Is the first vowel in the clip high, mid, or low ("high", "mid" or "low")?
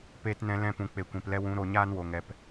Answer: mid